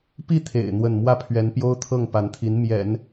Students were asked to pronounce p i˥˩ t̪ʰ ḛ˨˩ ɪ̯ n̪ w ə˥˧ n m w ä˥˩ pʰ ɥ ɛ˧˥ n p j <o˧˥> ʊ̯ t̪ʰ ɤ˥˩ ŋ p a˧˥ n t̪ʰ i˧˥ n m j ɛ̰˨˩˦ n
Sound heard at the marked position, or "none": o˥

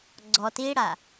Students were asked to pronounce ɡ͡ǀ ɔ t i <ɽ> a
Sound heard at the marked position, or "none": ɽ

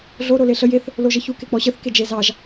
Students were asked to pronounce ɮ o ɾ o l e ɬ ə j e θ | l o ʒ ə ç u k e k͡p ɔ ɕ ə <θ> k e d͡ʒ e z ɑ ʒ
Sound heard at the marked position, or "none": θ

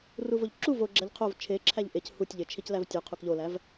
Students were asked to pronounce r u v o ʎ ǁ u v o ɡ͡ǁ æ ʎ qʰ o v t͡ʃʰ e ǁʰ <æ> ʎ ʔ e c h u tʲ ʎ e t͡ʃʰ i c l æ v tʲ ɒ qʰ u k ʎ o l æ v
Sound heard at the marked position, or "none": æ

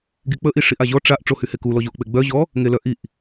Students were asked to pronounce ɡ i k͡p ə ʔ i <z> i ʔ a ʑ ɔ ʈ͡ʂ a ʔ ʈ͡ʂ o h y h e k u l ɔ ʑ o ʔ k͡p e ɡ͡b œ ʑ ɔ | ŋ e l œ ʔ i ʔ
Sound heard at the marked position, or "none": ʂ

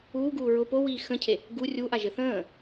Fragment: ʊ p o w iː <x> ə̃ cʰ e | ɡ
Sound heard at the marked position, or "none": x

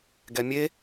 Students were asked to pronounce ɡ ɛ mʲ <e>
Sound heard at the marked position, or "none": e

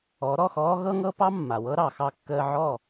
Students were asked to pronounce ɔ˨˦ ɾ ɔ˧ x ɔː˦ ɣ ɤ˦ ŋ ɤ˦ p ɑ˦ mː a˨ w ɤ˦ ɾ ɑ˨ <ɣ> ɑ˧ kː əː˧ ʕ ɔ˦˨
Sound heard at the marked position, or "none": x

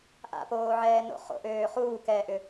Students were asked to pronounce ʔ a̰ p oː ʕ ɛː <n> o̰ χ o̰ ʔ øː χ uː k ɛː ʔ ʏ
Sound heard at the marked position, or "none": n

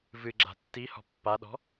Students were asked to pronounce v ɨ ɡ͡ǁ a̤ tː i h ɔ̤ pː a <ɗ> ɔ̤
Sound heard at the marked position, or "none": ɗ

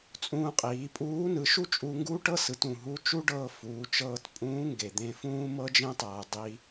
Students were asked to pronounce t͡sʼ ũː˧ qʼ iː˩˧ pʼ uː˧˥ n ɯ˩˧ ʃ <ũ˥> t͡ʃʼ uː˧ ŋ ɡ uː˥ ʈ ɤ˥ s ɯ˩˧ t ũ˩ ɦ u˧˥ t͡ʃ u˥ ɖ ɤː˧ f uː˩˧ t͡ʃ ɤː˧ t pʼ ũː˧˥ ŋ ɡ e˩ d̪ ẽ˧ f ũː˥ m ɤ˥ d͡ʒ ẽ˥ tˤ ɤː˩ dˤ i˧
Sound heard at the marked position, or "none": u˥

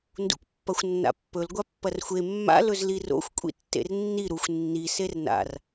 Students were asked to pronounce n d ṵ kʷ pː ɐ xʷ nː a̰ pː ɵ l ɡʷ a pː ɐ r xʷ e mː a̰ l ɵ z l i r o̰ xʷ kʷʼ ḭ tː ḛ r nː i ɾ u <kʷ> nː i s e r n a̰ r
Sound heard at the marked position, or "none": xʷ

